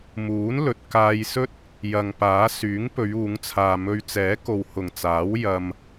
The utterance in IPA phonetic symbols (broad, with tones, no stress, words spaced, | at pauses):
muː˨˥n lɵ˨t̚kaː˧jsɵ˥t̚ | jɐ˨ŋ paː˨˥ syː˨˥ŋpɵ˨˧ɥ uː˨˧ŋt͡sʰaː˨mɵ˧ɥ t͡sɛː˨˥ko˨whʊ˨˩ŋt͡saː˨˥w jɐ˧m